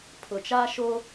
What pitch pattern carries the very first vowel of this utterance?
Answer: low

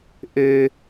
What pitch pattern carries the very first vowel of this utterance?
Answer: low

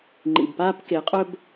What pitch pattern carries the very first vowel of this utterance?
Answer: low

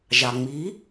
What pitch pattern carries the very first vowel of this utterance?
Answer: low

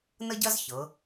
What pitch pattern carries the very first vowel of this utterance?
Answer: high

